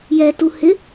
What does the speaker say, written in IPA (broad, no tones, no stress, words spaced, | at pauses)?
jɛtu hɪ